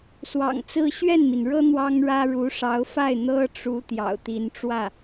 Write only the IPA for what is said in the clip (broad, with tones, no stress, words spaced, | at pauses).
swɑ̰˨˩ŋt͡sɹ̩˥ ɕɥɛ˥˩nmi˩nɻɤ˥ n̪wɑ˥ŋɻä˥ ɻu˧˥ʂɑ˧˥ʊ̯fa˥˩ɪ̯ n̪ɤ˥ʈ͡ʂu˧˥ t̪jɑ̰˨˩ʊ̯t̪i˧˥nʈ͡ʂwä˥˩